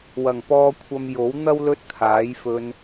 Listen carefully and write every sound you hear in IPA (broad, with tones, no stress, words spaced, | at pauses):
wɐ˨˩ŋpɔː˧ kʷʰɐ˧m jo˨˥w n̪ɐ˥w lɵ˥t̚t̪ʰaː˨˥jfɵ˧n